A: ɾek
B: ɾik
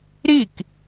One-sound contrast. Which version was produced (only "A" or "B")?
B